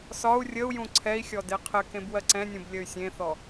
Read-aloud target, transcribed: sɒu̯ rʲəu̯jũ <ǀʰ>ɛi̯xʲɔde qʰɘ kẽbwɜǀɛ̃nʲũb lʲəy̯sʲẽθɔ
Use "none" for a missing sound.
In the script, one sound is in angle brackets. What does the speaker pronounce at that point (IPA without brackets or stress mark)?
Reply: ǀʰ